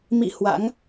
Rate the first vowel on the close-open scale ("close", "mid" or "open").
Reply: close